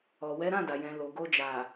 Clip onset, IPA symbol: ɔ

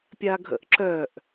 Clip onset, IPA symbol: pʲ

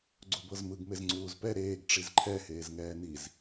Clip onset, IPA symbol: ɡ͡ǀ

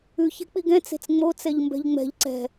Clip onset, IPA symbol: ʉ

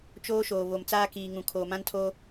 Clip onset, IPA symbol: t͡ʃ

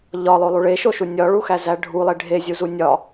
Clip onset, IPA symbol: ʎ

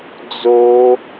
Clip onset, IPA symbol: d͡z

